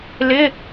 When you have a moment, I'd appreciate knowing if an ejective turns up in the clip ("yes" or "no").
no